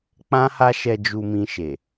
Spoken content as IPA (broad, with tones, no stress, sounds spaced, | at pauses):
k͡p ã˦ h a˦ ʃ ɛ˧ d͡ʒ u˧ m ĩ˧ ʃ e˨